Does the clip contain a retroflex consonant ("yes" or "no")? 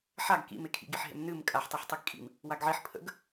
no